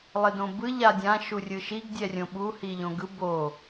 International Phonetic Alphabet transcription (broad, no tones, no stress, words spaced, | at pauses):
lˠedõbɯ ʎadʲã ʃurʲɯʃiɡ dʲɛrʲõɓu hiʎõɡɯ bo